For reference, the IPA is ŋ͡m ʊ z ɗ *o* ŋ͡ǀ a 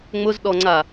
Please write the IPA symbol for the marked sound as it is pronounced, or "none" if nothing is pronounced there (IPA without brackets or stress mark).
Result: ɔ